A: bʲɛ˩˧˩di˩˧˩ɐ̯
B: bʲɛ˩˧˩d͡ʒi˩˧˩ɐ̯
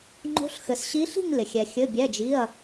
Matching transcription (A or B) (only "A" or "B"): B